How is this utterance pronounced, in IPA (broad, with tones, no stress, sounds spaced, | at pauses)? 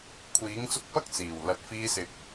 kʷʰ iː˨˥ ŋ t͡s ʊ˧ k̚ p ɐ˥ k̚ t͡s iː˨˩ w l ɐ˨˥ t̚ f iː˧ s ɪ˨˥ k̚